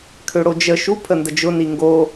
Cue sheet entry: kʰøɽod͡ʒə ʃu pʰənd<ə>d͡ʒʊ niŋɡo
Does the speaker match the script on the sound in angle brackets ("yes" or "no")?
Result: yes